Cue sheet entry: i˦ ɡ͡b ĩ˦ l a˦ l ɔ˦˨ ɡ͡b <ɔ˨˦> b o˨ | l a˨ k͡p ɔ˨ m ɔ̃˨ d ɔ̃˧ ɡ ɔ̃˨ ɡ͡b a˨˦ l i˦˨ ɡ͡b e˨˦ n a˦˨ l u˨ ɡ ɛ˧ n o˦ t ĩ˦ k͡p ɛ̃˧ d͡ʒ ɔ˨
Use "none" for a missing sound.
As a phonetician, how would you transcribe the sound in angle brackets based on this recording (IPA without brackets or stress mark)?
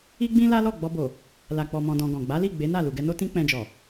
ɔ˧